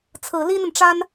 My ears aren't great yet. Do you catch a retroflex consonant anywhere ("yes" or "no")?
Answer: yes